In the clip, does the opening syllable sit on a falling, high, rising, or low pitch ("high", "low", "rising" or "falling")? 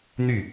falling